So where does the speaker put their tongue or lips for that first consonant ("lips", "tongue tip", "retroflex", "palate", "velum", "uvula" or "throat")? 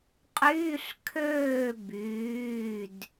uvula